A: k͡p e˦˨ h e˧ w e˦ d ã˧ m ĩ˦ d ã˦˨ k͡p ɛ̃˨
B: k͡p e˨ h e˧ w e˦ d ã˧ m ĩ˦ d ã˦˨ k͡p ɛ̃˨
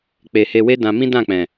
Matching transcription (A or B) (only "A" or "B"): B